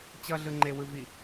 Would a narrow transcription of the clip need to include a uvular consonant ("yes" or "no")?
no